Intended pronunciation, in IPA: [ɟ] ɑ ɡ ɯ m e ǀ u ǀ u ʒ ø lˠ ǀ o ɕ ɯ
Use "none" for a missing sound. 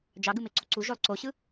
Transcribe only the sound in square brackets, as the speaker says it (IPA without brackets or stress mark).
d͡ʒ